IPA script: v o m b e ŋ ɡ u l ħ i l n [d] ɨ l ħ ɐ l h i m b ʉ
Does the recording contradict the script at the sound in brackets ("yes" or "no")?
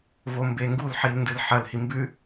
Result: no